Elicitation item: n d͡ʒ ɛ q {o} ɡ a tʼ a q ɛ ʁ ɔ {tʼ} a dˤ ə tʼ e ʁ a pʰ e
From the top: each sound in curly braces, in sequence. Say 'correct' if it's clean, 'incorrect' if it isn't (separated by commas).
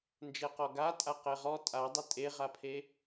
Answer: incorrect, correct